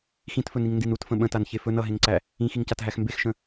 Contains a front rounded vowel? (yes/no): no